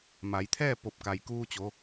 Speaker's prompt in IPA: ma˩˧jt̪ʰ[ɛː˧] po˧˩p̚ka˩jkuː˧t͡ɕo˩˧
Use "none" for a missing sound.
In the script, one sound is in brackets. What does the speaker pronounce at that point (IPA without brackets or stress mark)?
ɛː˥˨